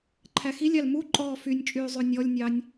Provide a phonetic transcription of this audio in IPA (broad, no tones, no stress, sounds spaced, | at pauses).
ǃʰ æ x i lʲ ɑ l m u ǃʼ ɔː f y nʲ t͡ʃʼ yː zˤ ʉ nʲ ɔ lʲ nʲ ɑ nʲ